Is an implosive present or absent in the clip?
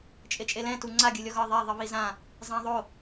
absent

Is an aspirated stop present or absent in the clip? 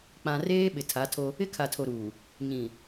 present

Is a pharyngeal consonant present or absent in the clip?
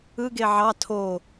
present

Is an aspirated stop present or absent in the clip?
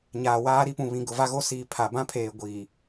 present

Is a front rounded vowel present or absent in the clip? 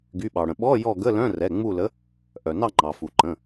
present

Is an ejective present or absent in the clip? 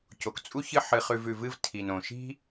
present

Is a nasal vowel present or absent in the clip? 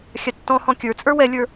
present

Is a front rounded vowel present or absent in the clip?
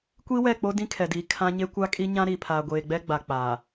absent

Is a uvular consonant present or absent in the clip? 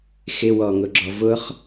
present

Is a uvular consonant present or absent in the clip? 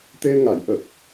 absent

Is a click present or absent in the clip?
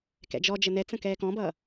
absent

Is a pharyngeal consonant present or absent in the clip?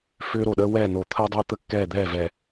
absent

